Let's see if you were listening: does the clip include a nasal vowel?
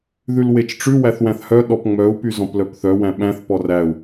yes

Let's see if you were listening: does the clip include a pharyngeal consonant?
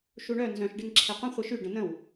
no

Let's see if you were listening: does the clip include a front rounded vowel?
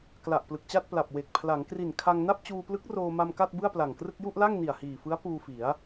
no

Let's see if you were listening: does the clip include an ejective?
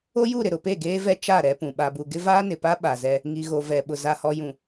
no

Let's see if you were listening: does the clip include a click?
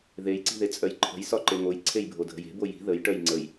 yes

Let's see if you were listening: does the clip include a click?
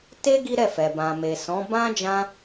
no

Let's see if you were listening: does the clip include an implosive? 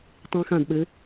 yes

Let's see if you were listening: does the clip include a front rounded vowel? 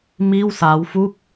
no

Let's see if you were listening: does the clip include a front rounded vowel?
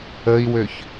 yes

